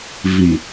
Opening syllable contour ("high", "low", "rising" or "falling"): low